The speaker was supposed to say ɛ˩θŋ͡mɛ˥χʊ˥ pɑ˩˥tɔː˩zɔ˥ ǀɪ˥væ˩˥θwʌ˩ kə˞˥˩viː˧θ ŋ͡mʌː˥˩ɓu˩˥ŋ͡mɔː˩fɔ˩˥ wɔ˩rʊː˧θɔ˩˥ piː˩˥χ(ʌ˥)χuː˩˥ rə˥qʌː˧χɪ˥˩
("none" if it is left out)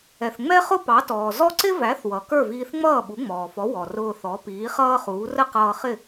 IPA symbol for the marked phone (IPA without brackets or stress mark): ʌː˥